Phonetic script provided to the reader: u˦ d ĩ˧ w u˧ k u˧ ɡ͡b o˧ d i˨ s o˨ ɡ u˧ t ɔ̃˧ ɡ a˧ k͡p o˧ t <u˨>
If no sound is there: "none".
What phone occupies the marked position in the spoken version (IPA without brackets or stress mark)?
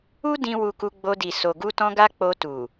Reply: u˨